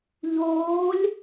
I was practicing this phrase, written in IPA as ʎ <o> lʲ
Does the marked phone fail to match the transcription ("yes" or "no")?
yes